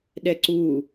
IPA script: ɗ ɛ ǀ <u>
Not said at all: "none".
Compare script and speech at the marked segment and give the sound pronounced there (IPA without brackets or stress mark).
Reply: u